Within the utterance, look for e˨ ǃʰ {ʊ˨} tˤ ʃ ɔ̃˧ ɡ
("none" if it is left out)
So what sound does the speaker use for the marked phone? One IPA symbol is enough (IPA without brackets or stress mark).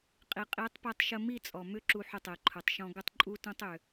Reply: ʊ˨